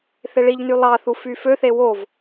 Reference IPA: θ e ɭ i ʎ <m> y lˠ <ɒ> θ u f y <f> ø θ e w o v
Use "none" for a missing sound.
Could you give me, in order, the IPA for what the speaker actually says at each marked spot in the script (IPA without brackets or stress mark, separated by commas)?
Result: n, ɑ, f